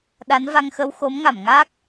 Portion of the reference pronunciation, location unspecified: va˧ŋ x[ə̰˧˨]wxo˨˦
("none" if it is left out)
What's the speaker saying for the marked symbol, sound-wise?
ə˧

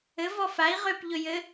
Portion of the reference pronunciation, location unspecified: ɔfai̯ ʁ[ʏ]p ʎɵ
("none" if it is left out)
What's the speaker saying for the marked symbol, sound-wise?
ʏ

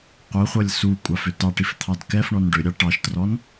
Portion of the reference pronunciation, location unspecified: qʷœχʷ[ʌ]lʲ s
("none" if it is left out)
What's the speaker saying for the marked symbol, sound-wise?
ʌ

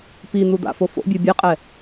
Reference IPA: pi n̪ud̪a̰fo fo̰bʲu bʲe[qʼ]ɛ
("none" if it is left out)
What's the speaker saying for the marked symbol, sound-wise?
qʼ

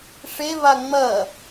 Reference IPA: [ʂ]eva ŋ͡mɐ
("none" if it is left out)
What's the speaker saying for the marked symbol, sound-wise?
ʂ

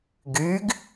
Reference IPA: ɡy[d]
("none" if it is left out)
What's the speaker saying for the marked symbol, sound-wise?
ɡ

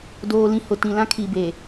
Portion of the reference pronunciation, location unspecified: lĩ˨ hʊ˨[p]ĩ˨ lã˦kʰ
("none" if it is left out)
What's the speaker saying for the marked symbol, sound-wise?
t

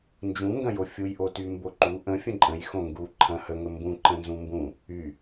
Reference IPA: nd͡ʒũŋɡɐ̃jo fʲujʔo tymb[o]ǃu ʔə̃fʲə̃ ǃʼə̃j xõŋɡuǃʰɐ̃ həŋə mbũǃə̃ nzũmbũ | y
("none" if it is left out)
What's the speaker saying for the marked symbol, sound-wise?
o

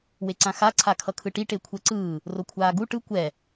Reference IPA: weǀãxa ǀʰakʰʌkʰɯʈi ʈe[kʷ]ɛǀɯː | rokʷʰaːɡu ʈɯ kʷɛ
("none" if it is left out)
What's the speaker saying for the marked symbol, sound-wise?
kʷʰ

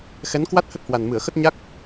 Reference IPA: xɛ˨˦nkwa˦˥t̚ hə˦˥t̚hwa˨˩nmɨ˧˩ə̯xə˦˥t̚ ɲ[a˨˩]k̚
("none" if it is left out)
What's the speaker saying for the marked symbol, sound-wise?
a˦˥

